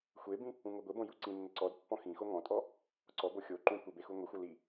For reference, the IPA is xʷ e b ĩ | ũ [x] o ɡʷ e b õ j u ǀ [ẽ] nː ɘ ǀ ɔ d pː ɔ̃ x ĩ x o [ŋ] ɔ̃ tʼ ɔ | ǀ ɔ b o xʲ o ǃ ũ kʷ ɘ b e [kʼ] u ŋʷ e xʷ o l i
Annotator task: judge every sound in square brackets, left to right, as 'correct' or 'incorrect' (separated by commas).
incorrect, incorrect, correct, incorrect